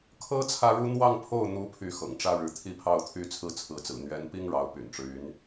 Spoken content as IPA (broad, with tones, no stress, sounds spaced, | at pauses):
kʰ ɤ˥ t͡sʰ ä˥ ɻ u˥ n̪ w ɑ˥˧ ŋ pʰ o˥˩ ʊ̯ n̪ u˧˥ pʰ y˥˩ x ɤ̰˨˩ ŋ ʈ͡ʂ ä˥ ɻ ɻ̩˧˥ t̪ʰ i˥ pʰ ɑ˥˧ ʊ̯ t̪ʰ y˥˧ t͡sʰ ɹ̩˥˩ t͡sʰ ɹ̩˧˥ t͡s ɹ̩˨˩ n̪ ɥ ɛ˧˥ n p i˥ ŋ ɻ ɑ˧˥ ʊ̯ p y̰˨˩ n ʈ͡ʂ ɻ̩˦ y˧˥ n